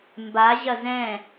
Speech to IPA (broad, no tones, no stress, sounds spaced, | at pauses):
m b a ʑ ɐ z ɛ̃